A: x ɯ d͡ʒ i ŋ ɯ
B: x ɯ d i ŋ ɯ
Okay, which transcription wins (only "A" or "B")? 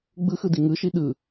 B